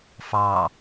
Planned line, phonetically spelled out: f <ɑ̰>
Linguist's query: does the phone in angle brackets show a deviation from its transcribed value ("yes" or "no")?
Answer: yes